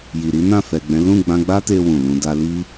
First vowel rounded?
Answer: no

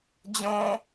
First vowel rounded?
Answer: yes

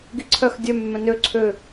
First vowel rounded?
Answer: no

